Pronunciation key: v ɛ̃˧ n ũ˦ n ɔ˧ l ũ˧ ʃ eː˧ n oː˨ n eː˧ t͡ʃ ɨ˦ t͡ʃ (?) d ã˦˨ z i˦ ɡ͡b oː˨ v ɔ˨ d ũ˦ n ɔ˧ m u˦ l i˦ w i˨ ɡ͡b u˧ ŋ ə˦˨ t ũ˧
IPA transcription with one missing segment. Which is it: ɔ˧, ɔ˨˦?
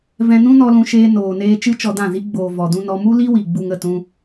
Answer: ɔ˧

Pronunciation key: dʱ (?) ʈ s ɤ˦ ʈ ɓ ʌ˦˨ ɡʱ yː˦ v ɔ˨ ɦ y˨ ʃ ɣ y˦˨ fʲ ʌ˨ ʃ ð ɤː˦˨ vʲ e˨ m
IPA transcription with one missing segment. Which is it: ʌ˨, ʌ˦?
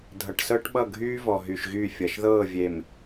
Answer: ʌ˨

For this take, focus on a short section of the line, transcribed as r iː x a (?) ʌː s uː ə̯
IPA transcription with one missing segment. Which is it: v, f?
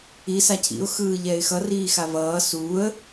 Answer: v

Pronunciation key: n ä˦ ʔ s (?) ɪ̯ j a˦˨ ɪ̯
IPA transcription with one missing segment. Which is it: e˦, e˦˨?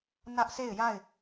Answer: e˦˨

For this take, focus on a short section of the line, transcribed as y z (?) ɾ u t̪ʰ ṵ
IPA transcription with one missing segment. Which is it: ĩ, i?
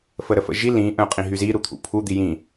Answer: i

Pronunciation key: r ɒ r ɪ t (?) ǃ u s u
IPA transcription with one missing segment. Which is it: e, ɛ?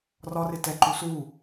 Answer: ɛ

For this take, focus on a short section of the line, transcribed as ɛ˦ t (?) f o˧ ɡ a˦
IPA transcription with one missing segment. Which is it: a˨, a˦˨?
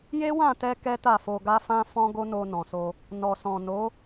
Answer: a˦˨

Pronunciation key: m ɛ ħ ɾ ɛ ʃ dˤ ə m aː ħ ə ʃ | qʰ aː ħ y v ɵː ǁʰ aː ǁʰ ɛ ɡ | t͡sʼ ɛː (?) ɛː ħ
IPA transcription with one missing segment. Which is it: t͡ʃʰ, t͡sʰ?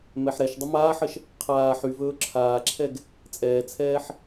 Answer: t͡sʰ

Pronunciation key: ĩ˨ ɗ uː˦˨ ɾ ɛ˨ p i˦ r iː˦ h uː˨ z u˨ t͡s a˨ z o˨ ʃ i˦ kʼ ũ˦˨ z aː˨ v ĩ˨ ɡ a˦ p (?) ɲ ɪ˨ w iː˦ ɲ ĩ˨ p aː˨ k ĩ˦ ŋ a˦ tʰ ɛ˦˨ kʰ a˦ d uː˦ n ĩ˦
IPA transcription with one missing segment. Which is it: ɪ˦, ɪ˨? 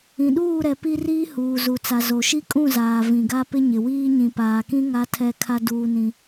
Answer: ɪ˦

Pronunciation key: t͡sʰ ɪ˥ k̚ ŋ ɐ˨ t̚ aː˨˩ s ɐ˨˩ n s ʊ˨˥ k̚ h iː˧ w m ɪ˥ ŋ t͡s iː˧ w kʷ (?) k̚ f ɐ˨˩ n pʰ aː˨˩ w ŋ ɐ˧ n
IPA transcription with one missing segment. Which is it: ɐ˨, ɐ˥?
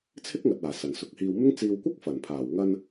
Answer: ɐ˥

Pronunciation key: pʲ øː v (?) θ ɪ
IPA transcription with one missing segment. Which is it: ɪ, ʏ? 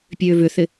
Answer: ʏ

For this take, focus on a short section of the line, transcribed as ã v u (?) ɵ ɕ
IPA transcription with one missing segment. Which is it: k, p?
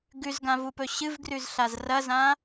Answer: p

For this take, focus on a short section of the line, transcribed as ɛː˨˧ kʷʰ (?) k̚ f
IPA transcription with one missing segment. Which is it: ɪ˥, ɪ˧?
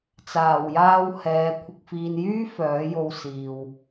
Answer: ɪ˧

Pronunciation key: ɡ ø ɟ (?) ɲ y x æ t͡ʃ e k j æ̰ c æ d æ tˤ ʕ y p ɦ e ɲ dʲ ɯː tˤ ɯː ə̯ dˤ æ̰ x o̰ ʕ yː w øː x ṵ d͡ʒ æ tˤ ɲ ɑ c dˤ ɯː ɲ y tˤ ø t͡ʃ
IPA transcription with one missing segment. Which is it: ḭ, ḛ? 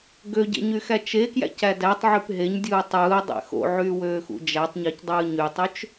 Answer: ḛ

